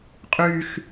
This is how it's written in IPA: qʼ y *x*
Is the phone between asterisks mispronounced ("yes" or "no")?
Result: no